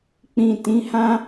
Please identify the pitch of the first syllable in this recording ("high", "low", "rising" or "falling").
low